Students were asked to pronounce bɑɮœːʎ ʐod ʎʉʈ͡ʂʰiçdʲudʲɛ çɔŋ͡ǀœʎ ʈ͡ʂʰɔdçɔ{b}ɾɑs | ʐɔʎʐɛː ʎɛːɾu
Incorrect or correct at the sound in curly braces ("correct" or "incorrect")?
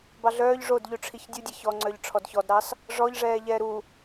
incorrect